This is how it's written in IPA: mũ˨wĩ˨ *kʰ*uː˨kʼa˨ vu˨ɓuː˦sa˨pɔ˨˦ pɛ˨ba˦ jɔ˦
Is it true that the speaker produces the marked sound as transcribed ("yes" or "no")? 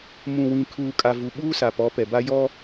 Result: yes